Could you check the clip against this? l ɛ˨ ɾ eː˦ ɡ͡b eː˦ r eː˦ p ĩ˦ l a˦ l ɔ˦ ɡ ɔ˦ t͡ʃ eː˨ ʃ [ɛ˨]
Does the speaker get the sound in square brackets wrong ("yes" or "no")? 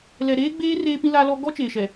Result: no